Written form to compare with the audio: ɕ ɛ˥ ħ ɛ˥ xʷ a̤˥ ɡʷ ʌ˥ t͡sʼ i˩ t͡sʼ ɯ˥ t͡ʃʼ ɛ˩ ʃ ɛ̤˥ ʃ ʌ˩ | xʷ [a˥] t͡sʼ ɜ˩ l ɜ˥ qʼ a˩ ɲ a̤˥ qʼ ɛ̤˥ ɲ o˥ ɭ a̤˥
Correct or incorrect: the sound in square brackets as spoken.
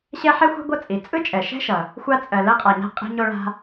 correct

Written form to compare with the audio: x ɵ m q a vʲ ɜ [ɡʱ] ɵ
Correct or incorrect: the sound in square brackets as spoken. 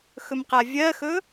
incorrect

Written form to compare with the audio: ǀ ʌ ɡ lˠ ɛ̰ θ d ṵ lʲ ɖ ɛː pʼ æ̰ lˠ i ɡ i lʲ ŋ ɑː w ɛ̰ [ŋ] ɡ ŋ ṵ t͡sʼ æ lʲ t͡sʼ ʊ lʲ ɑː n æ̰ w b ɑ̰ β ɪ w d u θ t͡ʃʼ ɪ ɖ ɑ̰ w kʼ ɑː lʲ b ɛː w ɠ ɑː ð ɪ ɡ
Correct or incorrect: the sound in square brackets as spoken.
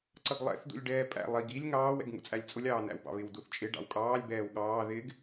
incorrect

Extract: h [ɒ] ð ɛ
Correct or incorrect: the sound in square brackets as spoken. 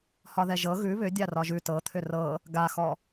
correct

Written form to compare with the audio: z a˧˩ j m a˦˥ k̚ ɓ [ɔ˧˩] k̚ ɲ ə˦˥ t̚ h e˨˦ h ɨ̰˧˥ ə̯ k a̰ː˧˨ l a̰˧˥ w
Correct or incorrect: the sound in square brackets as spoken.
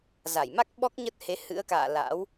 incorrect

